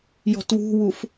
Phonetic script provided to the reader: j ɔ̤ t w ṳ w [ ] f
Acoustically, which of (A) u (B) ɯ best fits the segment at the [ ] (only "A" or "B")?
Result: A